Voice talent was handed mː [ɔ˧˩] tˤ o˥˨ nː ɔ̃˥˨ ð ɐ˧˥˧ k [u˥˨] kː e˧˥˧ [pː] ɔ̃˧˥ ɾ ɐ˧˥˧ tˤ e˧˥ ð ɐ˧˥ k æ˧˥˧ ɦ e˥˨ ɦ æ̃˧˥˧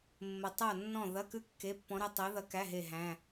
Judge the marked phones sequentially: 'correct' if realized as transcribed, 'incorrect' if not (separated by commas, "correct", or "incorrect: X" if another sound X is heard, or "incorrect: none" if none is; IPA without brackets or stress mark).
incorrect: ə˧˩, incorrect: ʉ˥˨, correct